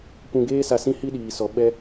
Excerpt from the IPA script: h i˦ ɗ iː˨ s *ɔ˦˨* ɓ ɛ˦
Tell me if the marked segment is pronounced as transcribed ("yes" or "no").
no